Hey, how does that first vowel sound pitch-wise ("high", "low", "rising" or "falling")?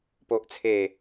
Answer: low